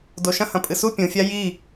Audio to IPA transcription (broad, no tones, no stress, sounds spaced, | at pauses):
d o ʃ ɐ̃ h ɐ̃ pʼ ɨ s u pʲ ũ fʲ a j i